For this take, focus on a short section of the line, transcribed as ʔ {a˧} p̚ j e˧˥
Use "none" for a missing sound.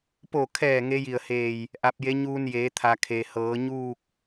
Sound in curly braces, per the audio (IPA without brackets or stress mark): a˧